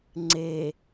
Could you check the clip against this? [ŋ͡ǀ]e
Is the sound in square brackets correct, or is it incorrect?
correct